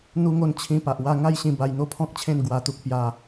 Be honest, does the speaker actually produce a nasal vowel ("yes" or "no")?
yes